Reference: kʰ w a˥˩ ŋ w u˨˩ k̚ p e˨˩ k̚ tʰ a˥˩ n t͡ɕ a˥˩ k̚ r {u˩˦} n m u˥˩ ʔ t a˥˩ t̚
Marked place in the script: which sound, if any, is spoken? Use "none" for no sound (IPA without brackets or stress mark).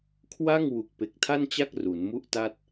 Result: u˩˦